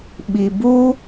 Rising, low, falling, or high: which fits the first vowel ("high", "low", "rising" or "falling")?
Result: low